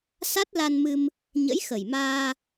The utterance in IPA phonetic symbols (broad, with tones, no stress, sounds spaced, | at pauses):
s a˦˥ t̚ l a˧ n m ɨ˧ m | ɲ ə̰˧˥ j x ə˨˩ j m aː˧